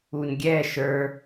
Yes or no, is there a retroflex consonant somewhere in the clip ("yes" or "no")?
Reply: no